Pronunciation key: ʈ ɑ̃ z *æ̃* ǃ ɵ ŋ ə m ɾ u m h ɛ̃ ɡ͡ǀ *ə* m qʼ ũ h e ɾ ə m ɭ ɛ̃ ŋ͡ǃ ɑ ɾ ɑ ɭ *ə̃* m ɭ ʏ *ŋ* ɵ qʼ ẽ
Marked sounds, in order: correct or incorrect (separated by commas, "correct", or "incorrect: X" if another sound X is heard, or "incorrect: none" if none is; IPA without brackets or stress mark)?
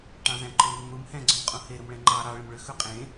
correct, incorrect: ɵ, correct, incorrect: x